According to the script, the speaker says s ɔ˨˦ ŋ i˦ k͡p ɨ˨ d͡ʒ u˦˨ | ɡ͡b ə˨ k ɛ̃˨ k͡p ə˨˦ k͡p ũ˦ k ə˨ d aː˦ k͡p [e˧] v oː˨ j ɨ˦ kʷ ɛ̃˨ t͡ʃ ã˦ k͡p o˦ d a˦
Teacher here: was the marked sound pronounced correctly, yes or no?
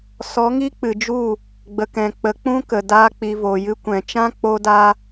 no